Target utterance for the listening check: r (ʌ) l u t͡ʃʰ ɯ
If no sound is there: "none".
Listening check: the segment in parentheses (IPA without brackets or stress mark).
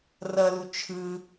ʌ